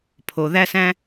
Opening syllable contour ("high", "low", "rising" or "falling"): low